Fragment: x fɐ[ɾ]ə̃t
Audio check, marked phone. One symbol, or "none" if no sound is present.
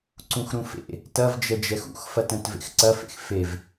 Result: t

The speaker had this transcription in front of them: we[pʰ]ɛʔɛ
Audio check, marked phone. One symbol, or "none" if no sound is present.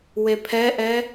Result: pʰ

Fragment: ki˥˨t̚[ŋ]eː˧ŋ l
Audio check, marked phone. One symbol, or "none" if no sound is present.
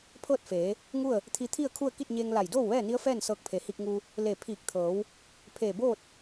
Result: ɲ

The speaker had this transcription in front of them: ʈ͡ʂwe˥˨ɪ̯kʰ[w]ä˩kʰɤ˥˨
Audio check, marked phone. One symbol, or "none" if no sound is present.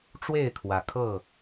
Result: w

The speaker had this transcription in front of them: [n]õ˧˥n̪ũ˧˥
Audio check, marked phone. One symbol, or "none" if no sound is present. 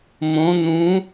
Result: m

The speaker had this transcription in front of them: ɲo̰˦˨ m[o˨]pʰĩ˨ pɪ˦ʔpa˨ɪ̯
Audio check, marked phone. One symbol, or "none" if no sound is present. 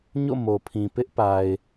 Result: o˨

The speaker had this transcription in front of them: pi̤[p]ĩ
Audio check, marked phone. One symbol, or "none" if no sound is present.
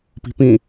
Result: p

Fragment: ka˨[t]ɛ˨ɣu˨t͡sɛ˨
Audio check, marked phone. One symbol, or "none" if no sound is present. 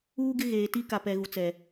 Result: p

